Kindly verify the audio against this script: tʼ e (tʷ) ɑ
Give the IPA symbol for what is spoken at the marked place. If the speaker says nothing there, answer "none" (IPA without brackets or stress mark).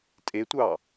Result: tʷ